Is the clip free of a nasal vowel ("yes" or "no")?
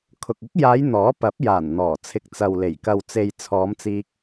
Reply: yes